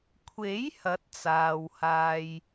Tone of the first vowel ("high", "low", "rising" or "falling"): rising